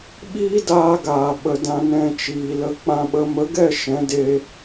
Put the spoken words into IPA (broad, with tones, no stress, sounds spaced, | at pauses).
ɓ iː˦ d aː˧ ɡ aː˨ ɓ ə˨ d ã˧ n ɛ̃˧ t͡ʃ iː˨ l ə˧ k͡p ã˦ ɓ ə˦ m ə˨˦ ɡ ɛ˦˨ ʃ ɛ̃˨˦ d e˧